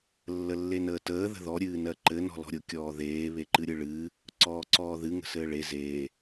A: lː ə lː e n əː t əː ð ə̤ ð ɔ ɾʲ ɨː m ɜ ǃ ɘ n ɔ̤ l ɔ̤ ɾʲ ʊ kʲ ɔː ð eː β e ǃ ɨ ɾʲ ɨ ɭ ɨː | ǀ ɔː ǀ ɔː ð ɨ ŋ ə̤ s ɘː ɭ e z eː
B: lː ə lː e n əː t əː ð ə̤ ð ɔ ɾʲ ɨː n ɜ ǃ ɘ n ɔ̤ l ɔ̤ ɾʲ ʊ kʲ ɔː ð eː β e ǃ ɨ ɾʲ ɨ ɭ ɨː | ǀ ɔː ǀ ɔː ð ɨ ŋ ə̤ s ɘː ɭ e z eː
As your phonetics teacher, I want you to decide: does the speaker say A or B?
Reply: B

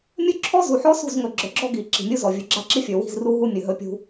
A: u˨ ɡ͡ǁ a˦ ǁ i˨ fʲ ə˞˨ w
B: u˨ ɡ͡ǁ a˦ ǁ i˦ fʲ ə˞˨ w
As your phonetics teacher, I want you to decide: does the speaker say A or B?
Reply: B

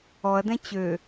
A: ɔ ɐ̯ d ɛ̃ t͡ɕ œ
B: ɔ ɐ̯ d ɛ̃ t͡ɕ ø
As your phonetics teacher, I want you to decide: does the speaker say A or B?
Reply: B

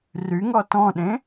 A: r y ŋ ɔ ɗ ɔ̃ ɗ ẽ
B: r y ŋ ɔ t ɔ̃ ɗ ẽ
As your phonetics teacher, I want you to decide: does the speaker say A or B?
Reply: B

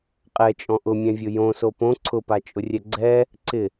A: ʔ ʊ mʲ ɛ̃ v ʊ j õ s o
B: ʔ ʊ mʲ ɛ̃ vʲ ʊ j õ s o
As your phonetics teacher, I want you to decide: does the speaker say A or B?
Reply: B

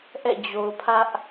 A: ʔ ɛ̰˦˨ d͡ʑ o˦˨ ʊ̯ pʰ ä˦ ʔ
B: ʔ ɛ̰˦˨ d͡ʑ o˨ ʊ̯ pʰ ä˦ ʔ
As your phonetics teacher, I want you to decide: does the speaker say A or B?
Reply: B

